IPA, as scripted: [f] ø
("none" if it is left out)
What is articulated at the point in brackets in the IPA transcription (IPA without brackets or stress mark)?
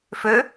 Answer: f